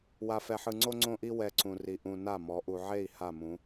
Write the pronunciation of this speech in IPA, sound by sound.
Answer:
w a˨ f ɛ˨ ħ ɯ˨ ŋ͡ǀ o˦ ŋ͡ǀ õ˦ ʔ i˦ w ɛ˨ ǀ ũ˨ r i˨ ʔ ũ˨ n a˦˨ m ɔ˨˦ ʔ u˨ ʕ e˦˨ i̯ h a˦˨ m ũ˨˦

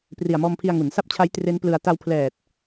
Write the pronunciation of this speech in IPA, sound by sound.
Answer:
p r i˨˩ a̯ m ɔː˧ m pʰ i˧ a̯ ŋ u˩˦ n s a˦˥ p̚ t͡ɕʰ a˦˥ j t r e˦˥ n p l ɯ˧ a̯ t a˧ w pʰ l ɛː˨˩ t̚

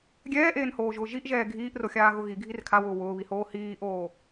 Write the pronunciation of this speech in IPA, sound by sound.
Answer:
ɡʲ ɛː ʔ eː n h oː ʒ ʊː ʒ i ʔ ʒ ɛː ɡʱ iː ʔ r o xʲ aː ɣ ʊ ɣ i ɡʱ i r kʰ a w ʊː w ʊː β i h oː h iː ʔ oː

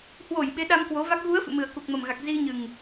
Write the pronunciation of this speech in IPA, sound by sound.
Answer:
h w o˧˩ j ɓ e˨˦ ɗ a˧ m k w o˨˦ v a˦˥ k̚ ɣ u˨˦ ə̯ f ɨ̰˧˨ m ɨ˨˩ ə̯ k u˨˩ k̚ m ə˨˩ m ɣ a˨˩ k̚ z i˧ ɲ ɨ˨˩ ŋ

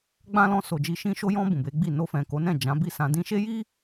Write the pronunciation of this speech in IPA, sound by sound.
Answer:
ɡ͡b ã˦ l ɔ̃˧ s o˨ d͡ʒ i˧ ʃ ĩ˧ ʃ o˧ j ɔ̃˧ b ũ˨ b e˨˦ ɡ͡b i˦˨ n o˧ f ɛ̃˨ k o˨˦ n ɛ̃˦˨ d͡ʒ ã˨˦ b i˦˨ s ã˧ d ĩ˦ ʃ e˦ j i˦

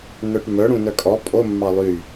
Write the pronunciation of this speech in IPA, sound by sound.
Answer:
n œ ʈ m œ ɽ ũ n œ kʼ ɔ pʼ o mː ɑ lˠ y

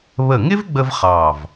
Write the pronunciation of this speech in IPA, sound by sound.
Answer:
β ə˧˩ ŋ ɪ˥ v ɡ͡b ə˧ v χ ɑ˧˩ v

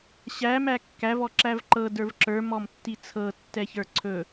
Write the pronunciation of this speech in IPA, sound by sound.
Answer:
ɕ æ m æ kː æ v ɔ ǁ æ v ǃ ɤ d ə˞ v ǁ ə˞ m ɔ m tː i t͡sʰ ɤ tː ɛ ç ə˞ ǀʰ ɵ

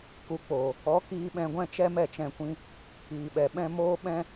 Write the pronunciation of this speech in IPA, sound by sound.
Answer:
k u˨ k͡p oː˨ | ɔ˨˦ k iː˧ ɓ ɛ̃˧ ɡʷ ɛ̃˦ t͡ʃ ɛ˦ m ɛ˦˨ t͡ʃ ɛ̃˧ kʷ ĩ˦ | iː˨ ɓ ɛ˨ ɓ ɛ̃˦ m oː˦ ɓ ɛ̃˦

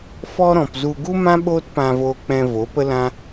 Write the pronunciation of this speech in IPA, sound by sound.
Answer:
f ɔ˦ ɾ ɔ̃˨ p z u˧ ɡ u˦ m ã˦ ɓ oː˦ t p ã˧ v oː˧ k͡p ɛ̃˧ v o˨˦ p ə˦ l ã˦

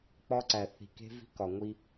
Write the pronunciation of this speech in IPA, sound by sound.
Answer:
k͡p ɒ˦ ǀ æ˨ θ i̤˨ k e̤˦ v i̤˦ k ɒ˨ ŋʷ i˦

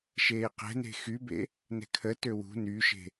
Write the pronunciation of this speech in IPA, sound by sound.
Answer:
ʃ eː q ɛ̤ n e̤ x y b ḛ | n ɛ̤ kʰ ə t ø w ṳ n y ʃ e̤

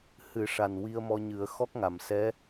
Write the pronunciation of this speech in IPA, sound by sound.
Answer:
h ɨ˨˩˦ ʂ a˨˩ n w i˧ ə̯ m ɔ˧ ɲ ɨ˨˩˦ ə̯ x ɔ˦˥ k̚ ŋ a˨˩˨ m s ɛ˧˥

